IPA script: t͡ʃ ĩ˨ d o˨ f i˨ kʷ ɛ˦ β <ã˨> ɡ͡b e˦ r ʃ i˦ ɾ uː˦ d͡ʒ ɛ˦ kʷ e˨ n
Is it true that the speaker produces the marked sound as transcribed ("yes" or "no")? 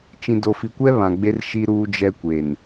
yes